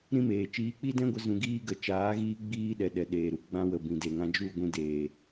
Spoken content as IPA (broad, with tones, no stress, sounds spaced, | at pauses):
ɾ ĩ˦ m eː˨ t͡ʃ iː˨˦ k͡p i˦ d ɛ̃˦ ɡʷ a˧ z ũ˧ ɡ iː˦ ɡ ə˨˦ t͡ʃ aː˨˦ ɣ iː˧ ɡ͡b iː˧ ɗ ɛ˨ ɗ ɛ˨ ɗ eː˨ ɾ u˧ ɡ͡b ã˧ w ə˨ b ĩ˨ d e˨ ŋ ã˧ d͡ʒ u˦˨ ɡʷ ĩ˧ d eː˨